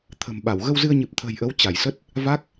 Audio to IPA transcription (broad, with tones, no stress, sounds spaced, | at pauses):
t̪ʰ ə̤˨˩ m ɓ a˧˩ w ɣ ə˧ w z ɨ˧ ə̯ ɲ ɨ˨˩ p̚ t̪ʰ ə̤ː˨˩ j ʔ ə˨˦ w t͡ɕ a˧˩ j s ə˦˥ t̚ | v a˦˥ k̚